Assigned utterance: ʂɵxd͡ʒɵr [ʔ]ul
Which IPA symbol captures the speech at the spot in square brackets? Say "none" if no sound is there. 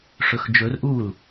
ʔ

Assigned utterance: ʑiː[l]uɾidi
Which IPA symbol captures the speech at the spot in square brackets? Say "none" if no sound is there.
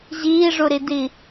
ʐ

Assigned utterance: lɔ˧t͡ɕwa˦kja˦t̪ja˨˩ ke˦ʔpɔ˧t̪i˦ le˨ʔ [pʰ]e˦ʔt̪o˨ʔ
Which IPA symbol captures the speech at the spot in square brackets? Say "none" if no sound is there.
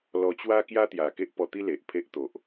pʰ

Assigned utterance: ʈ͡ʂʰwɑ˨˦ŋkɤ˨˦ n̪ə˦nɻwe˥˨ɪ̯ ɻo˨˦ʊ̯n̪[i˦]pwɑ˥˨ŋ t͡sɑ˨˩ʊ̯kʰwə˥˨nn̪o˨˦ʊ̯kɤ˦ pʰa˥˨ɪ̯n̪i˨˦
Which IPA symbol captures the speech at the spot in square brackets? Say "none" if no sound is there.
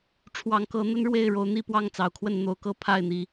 i˥˨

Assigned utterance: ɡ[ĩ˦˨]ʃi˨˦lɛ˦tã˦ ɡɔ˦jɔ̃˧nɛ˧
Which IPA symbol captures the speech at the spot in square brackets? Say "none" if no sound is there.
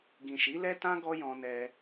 ĩ˨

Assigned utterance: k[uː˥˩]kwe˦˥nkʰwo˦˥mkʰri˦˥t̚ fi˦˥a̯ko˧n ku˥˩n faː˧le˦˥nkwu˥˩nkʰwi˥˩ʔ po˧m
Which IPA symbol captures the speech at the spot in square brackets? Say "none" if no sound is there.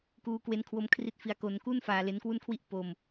uː˦˥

